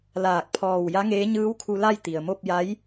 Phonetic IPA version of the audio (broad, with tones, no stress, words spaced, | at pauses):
laː˧˩k̚pʰɔː˧˩w ja˧˥ŋeː˧˥ɲɯː˧˥wkʰu˧ la˥˨jt̪i˩ə̯mo˥˨p̚ ja˧˥j